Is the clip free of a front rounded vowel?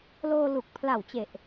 yes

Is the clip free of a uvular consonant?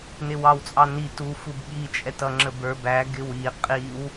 no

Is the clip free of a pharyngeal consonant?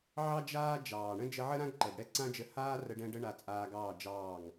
no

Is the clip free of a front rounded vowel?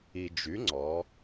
no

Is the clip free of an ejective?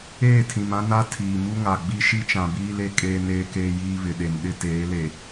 no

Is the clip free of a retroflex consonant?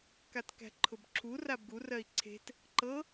yes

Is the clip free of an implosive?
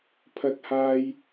yes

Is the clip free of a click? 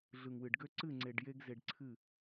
no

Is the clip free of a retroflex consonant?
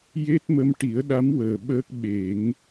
no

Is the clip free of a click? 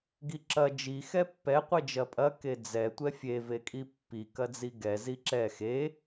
no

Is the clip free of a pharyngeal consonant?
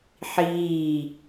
no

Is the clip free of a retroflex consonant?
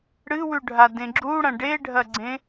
no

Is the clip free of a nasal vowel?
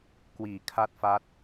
yes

